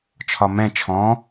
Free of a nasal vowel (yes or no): no